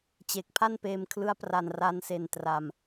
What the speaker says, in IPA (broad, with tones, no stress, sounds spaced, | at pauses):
t͡ɕ e˨˩ k̚ pʰ a˥˩ n p eː˧ m kʰ l ɯ˦˥ a̯ p r a˧ n r a˦˥ n s e˧ n t r a˧ m